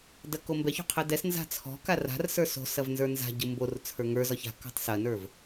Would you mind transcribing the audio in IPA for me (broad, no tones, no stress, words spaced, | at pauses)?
dɐkombɛço̤ qʰɛdɛsnza̤ t͡sʰɔ̤ka ra̤rsə˞ so̤sɐv nzə˞nza̤ɟɯ mbor t͡sʰə˞ŋə˞zɒç a̤ kɔ̤tˤsɐnə˞v